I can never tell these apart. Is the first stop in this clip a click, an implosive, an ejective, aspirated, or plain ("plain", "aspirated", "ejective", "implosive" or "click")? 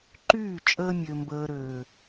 click